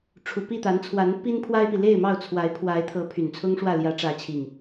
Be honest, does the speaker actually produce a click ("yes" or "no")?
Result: no